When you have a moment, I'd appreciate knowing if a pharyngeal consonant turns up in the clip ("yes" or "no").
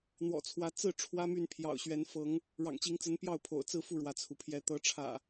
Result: no